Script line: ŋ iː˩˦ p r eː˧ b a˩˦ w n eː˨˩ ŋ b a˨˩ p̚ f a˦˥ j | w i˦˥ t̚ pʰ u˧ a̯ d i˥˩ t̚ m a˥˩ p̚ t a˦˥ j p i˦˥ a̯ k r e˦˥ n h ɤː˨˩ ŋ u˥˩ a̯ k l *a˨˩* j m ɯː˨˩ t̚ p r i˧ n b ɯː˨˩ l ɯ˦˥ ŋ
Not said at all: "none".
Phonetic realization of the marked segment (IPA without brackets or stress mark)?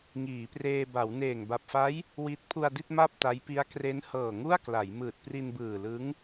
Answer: a˩˦